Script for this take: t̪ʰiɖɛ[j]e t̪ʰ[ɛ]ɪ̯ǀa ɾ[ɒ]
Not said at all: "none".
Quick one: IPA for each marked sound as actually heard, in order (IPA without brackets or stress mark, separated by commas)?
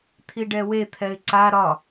w, ɛ, ɒ